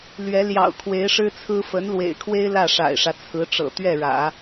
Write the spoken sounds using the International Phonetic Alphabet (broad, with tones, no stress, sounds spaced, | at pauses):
l ɥ ɛ˧˥ l j ɑ̰˨˩ ʊ̯ kʰ w e˧˥ ɪ̯ ʂ ɻ̩˥ t͡sʰ ɹ̩˥ f ə˧˥ n l w ḛ˨˩ ɪ̯ kʰ w e˥ ɪ̯ l ä˥˩ ʂ a̰˨˩ ɪ̯ ʂ ä˦ t͡sʰ ɹ̩˧˥ ʈ͡ʂ ɤ̰˨˩ t̪ ɥ ɛ˥˩ ɻ ä̰˨˩˦